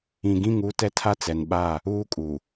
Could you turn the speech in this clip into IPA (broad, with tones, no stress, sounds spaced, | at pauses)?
ĩ˨ ɡ ĩ˦˨ ŋ uː˦ t ɛ˦ tʰ a˦ t͡s ɛ˨ n ɓ aː˦˨ | uː˦ kʼ uː˨